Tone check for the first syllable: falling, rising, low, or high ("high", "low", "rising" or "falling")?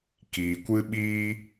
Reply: low